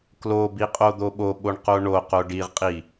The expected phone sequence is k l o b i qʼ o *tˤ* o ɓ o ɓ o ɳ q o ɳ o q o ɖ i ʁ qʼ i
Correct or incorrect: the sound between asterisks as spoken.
incorrect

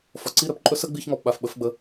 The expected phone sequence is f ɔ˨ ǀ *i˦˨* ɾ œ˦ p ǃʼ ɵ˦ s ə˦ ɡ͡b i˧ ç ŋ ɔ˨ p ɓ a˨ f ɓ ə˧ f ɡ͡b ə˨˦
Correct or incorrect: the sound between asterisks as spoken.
correct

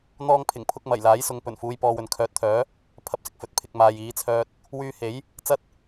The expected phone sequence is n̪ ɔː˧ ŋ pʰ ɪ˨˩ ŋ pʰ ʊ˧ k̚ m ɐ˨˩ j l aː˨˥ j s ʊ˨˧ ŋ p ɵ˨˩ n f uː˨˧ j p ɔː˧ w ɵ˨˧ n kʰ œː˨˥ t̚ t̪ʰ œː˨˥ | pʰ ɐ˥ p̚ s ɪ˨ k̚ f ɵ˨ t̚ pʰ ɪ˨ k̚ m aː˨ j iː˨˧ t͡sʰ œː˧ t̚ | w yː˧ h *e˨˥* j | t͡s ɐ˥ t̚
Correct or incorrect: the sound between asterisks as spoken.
correct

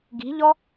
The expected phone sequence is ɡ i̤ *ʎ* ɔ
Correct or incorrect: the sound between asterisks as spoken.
correct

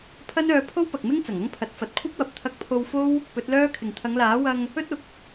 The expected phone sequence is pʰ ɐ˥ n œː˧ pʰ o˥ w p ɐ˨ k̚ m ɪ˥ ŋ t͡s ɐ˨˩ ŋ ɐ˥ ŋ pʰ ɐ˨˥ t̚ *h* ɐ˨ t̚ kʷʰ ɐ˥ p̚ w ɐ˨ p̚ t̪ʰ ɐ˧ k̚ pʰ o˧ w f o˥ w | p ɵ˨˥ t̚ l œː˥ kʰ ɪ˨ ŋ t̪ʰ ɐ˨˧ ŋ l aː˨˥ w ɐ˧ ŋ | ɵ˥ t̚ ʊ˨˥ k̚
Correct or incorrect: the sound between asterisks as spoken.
incorrect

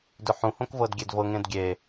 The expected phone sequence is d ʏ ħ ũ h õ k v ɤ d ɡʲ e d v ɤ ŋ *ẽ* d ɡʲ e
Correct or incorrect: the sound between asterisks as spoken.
correct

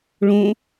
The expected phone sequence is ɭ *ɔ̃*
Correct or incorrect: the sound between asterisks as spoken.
incorrect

